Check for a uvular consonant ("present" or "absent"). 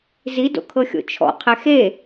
present